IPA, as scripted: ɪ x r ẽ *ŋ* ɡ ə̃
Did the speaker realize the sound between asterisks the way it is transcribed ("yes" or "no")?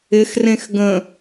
no